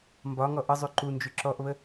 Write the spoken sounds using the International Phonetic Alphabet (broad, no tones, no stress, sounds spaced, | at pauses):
m b ɒ ŋ ɔ ʔ ə zˤ y ǃ u n d͡ʒ y ǁ ɔ ʔ β ə